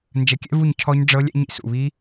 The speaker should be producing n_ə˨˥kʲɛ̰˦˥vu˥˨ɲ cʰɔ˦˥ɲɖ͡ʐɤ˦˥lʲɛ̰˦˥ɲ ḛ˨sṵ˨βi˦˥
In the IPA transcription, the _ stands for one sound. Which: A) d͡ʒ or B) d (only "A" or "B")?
A